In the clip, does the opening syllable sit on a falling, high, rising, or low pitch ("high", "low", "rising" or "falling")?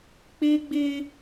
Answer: high